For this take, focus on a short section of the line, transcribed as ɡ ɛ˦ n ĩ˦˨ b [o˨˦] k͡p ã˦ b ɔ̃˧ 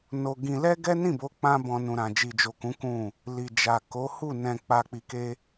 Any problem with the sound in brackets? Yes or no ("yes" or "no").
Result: no